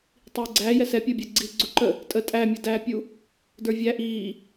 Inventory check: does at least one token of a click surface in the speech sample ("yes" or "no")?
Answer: yes